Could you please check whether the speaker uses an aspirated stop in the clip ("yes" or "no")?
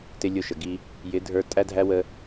no